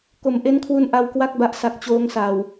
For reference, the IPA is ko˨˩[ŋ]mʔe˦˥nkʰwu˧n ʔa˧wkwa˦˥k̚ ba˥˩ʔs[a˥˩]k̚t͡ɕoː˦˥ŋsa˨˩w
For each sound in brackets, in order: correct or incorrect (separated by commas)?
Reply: incorrect, incorrect